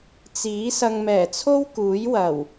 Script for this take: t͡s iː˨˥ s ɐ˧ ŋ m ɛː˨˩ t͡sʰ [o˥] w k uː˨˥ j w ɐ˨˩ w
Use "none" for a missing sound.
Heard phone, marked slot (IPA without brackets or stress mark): o˥